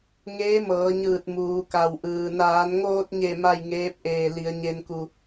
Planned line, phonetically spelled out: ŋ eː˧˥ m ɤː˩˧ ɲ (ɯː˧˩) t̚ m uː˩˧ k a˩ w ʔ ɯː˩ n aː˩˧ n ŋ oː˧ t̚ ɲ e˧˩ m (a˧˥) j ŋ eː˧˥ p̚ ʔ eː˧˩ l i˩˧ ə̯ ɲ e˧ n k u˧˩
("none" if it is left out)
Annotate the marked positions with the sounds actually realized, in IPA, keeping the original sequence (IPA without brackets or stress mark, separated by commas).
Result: ɯː˧˩, a˥˨